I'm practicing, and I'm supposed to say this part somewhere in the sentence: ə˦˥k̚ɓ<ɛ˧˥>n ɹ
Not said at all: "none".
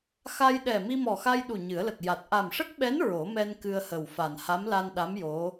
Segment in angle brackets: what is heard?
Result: ɛ˧˥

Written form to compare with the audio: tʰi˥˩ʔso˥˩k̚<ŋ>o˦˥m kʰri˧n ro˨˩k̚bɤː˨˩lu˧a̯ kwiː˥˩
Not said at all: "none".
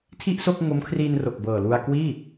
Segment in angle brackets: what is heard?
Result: ŋ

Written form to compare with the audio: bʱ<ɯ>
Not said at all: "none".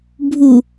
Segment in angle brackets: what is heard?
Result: u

